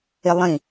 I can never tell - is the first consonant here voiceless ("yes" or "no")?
no